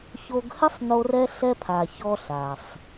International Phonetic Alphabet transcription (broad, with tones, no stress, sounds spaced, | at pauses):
ç o˧ ɡ h ɘ˥ sˤ n o˧ r ɛ˧ ɬ ɛ˧ pʰ a˩ ç ɔ˧ ɬ a˩ sˤ